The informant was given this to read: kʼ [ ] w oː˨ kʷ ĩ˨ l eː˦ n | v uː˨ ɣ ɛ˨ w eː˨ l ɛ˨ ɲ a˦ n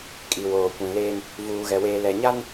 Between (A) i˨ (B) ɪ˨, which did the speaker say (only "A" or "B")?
A